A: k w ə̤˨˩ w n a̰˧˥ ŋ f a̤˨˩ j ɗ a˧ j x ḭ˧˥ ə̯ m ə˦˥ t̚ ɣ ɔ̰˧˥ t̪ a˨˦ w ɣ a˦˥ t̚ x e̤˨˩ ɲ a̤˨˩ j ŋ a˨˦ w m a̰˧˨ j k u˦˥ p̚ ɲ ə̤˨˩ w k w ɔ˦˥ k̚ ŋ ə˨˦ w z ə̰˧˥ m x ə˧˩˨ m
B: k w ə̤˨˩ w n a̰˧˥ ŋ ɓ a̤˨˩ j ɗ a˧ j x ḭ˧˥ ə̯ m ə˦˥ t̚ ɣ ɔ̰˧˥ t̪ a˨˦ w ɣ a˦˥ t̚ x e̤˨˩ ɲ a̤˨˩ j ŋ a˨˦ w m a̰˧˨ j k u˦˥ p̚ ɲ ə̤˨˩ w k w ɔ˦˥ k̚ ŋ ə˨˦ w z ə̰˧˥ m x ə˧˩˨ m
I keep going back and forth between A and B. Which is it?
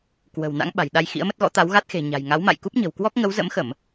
B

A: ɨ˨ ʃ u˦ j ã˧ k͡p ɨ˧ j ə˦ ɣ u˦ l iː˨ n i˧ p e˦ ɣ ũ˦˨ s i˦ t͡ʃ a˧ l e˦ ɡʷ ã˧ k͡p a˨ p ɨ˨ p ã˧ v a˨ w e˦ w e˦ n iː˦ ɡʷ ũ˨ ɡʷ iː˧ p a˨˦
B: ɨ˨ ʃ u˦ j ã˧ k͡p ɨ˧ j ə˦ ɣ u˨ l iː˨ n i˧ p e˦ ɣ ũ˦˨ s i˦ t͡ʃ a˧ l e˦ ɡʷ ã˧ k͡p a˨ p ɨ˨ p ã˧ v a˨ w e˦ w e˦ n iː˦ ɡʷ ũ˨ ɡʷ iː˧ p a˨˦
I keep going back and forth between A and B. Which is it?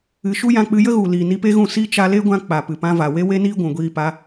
B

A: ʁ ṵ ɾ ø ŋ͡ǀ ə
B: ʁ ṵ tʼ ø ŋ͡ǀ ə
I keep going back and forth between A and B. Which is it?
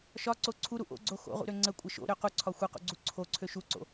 A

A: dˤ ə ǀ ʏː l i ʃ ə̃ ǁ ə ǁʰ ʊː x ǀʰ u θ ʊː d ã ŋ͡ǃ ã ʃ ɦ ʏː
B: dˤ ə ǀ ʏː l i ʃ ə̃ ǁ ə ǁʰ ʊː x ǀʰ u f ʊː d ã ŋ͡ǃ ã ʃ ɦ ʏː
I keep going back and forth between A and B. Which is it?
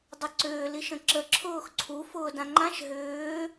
B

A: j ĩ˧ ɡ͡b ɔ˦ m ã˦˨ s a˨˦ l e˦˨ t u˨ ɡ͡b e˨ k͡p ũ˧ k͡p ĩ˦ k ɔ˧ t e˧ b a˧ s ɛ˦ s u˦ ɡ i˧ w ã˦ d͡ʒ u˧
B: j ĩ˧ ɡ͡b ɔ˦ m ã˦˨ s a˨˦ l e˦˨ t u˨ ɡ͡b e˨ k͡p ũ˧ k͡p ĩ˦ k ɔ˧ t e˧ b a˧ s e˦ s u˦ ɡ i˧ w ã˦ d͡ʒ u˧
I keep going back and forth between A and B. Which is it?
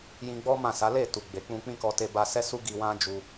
A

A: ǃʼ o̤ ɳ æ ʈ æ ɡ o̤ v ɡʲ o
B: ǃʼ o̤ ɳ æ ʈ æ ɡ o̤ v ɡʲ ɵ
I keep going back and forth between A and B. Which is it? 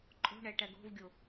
A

